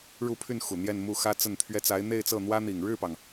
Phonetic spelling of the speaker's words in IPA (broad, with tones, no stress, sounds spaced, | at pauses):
ɻ u˥˧ pʰ y˥˩ n x u˨˩ n̪ j ɛ˥˧ n m u˥˩ x ä˥ t͡s ə˥˩ n t̪ʰ ɥ ɛ˥ t͡s a˧˥ ɪ̯ n̪ e˥˧ ɪ̯ t͡s ɤ˥˩ n̪ w ä˥ n̪ i˨˩ ŋ ɻ ɻ̩˥˩ p ɑ˩ ŋ